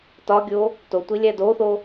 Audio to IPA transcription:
t ɒ ɡʲ o | t o tʷ i lʲ æ d o θ o

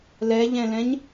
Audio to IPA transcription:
l ɛ ʎ ɛ̃ l ɛ̃ ɲ

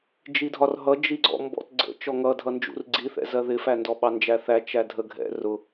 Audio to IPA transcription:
d͡ʒ i dʱ ɒ r ɦ ʌ d͡ʒ i ɡ͡ǀ ɔ̰ m b ɔ̰ t ɡ͡ǀ ə̰ t͡ʃ ɔ ŋ ʌ dʱ ʌ n d͡ʒ ṵ r ɡ͡ǀ i θ ɛ̰ z ɜ ð ɪ f æ n d ɔ ɓ ɑ n d͡ʒ æ θ æ t͡ʃ æ dʱ ə ɡʱ ɛ̰ r ʊ

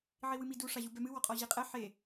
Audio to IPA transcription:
ʕ i w ɨ m i d u ʂ a ʑ u b ɛ m ɨ w ɔ qʼ ɔ ʑ i qʼ ɛ ħ e

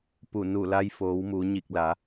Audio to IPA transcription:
p u˧˩ n u˧˩ l a˧ j f oː˩˧ w m u˩˧ ɲ i˧˩ k̚ l a˩˧

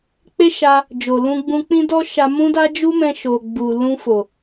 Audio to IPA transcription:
k͡p e˦ ʃ a˧ | d͡ʒ o˨ l ũ˧ ɡ͡b ũ˧ k͡p ĩ˦ d ɔ˦ ʃ a˧ m ũ˦ d a˦ d͡ʒ u˦ m ɛ̃˧ ʃ o˨ ɡ͡b u˨ l ũ˧ f o˨

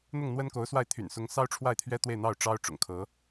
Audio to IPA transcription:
n̪ ʊ˥˩ ŋ n̪ w ə˥ n k o˧˥ ʊ̯ s w a˥˩ ɪ̯ t̪ʰ y̰˨˩ n s ʊ˧˥ ŋ s ɑ˥ ʊ̯ ʈ͡ʂʰ w a˥˩ ɪ̯ t̪ʰ ɥ ɛ˥ t̪ w e˥˧ ɪ̯ n̪ ɑ˥˩ ʊ̯ ʈ͡ʂ ɑ˥ ʊ̯ ʈ͡ʂ ʊ̰˨˩ ŋ kʰ ɤ˧˥

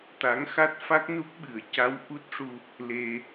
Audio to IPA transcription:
t̪ a˧˥ ŋ x a˦˥ t̚ f a˦˥ k̚ n u˦˥ k̚ ɓ ɨ˨˩˦ ə̯ c a˧˥ w ʔ u˦˥ t̚ ʂ u˧ | l e˧

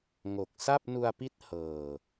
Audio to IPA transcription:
ŋ o˨˩ k̚ s a˥˩ p̚ n u˧ a̯ p i˦˥ t̚ h ɤː˨˩

